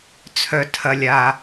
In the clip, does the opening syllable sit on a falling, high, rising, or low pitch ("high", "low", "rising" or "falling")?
low